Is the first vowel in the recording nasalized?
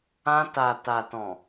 yes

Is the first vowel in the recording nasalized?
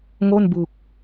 no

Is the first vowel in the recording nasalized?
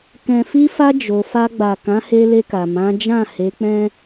yes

